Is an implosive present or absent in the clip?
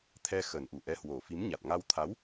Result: absent